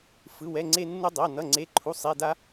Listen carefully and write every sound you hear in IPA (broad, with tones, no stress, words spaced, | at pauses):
fɯ˧˥˧wɛ˧˥˧ŋ͡ǀe˥nːu˥ dˤa˧˥˧nʌ˧˥˧ŋ͡ǀe˧˥˧ ǃʰu˧˥˧sˤe˧˥˧da˥